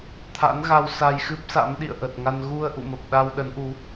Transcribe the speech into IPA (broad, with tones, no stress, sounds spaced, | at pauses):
t̪ʰ a̰˧˥ n ɣ a˧ w s a˧ j x ɨ˦˥ p̚ s a̰˧˥ m ɗ ḭ˧˨ ə̯ ʔ ə˨˩ t̚ ŋ a˧ n ɣ u˧ ə̯ ʔ ṵ˧˨ m ə˨˩ p̚ ɗ a˧ w ɗ ə˨˦ n ʔ u˨˦